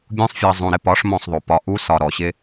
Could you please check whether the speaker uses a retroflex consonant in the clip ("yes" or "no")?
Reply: yes